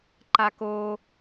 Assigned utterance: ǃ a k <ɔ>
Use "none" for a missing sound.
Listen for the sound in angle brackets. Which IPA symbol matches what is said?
o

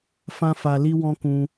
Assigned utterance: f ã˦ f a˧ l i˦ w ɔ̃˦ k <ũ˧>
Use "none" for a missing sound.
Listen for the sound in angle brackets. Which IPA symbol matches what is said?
ũ˧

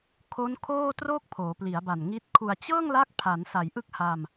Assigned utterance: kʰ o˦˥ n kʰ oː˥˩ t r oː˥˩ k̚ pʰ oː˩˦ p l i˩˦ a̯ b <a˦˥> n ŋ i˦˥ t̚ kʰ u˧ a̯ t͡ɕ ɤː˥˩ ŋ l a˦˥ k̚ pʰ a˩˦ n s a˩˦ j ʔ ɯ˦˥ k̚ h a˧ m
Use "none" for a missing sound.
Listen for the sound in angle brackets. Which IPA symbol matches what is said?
a˨˩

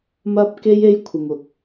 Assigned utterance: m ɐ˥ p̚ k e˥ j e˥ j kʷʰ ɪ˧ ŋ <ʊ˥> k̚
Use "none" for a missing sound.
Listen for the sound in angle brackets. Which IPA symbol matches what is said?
ʊ˨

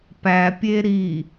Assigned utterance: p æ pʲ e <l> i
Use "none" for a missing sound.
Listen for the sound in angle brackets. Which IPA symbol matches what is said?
ɾ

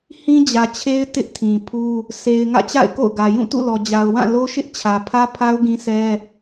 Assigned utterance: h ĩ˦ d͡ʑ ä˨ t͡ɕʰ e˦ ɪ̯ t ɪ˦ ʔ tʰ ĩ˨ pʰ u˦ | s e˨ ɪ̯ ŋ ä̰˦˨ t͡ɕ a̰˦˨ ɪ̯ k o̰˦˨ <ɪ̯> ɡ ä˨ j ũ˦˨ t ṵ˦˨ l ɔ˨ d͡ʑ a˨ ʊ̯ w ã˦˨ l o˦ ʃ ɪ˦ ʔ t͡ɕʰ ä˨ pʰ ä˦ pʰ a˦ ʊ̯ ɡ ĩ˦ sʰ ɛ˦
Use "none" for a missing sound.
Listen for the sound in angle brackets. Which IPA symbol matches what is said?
ʊ̯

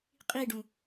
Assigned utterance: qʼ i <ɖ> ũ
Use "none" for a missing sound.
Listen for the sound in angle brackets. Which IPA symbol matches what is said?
ɖ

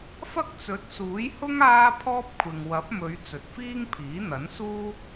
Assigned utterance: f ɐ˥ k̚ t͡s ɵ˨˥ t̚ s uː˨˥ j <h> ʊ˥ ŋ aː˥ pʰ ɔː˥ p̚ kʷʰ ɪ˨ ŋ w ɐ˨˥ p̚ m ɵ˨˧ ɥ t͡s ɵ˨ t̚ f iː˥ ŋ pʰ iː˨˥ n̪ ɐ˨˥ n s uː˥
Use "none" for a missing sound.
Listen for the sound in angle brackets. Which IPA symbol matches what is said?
h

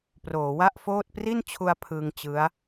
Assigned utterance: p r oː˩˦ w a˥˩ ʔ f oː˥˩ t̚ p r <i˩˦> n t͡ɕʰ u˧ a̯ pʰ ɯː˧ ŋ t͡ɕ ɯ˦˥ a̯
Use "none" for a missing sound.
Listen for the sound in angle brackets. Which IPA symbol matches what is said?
i˥˩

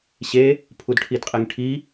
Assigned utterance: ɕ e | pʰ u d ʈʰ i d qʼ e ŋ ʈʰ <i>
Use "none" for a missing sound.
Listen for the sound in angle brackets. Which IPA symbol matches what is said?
i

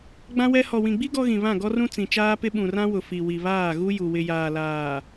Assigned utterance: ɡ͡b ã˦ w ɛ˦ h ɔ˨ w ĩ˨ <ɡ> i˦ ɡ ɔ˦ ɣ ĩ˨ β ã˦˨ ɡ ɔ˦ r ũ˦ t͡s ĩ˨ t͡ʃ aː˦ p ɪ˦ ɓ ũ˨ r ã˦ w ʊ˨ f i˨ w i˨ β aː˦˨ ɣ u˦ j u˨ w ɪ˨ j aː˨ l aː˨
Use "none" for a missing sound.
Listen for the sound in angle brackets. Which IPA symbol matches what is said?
ɡ͡b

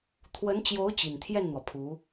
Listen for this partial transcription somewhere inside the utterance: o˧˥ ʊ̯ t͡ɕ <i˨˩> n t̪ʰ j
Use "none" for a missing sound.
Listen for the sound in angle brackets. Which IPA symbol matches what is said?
i˨˩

